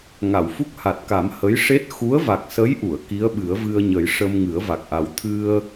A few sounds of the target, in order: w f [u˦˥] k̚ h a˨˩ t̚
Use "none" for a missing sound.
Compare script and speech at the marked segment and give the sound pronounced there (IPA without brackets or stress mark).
u˦˥